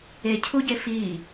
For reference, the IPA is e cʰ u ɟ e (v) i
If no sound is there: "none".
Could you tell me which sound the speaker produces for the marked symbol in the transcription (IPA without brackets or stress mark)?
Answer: f